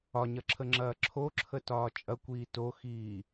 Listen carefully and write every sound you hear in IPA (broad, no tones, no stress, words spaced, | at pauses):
ɒɲɐǁʰəŋ͡ǁɐː ǁʰoǁʰətɒː t͡ʃʼɐkʷiː toxiː